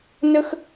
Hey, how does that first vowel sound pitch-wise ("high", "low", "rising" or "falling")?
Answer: high